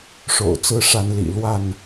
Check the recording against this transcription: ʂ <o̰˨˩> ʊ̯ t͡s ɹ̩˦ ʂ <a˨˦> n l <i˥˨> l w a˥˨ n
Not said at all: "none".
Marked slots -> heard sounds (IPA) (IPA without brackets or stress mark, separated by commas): o̰˨˩, a˨˦, ḭ˨˩